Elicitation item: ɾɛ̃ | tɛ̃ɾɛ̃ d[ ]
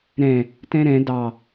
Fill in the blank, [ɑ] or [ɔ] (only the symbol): ɑ